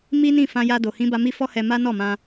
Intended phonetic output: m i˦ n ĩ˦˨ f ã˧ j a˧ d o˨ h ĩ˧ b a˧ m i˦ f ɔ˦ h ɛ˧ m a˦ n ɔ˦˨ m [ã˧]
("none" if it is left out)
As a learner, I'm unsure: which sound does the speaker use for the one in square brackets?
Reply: ã˧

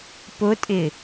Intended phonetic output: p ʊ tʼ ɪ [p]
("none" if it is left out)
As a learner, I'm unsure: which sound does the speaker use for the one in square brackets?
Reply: none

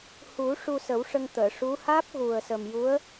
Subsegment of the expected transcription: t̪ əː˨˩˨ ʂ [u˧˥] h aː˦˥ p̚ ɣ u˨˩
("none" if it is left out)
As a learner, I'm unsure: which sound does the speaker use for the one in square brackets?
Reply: u˧˥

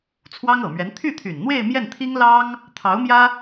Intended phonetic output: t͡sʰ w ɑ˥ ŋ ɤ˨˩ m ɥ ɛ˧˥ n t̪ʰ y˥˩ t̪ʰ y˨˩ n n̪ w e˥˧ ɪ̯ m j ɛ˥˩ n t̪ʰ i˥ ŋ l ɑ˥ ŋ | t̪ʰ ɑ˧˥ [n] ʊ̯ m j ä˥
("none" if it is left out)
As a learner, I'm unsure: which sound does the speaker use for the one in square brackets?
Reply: none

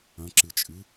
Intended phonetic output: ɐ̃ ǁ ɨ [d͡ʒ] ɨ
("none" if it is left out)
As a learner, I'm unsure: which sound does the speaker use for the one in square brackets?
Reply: t͡ʃʼ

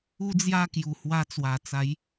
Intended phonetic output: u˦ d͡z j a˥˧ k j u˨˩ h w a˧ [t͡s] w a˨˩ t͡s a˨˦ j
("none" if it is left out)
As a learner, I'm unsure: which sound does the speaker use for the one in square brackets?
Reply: t͡s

